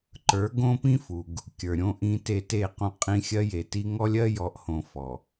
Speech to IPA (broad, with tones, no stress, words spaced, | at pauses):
ǃə˞˨˦ɡõ˦pĩ˦fu˨ɡ | kʲə˞˨ɾʲõ˦ʔĩ˦te˦ te˦˨qõ˦qʼĩ˦ xʲɜ˦je˨ti˦ ŋɔ˦lʲɜ˦jɔ˨˦ʔhõ˨ fɔ˨